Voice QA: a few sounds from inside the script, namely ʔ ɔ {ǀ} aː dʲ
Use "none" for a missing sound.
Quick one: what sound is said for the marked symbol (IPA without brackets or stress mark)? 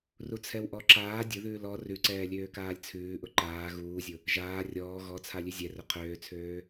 ǁ